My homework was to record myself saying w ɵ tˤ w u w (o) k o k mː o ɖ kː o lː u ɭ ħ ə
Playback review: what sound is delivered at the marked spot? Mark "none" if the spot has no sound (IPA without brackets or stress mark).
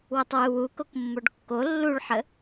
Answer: u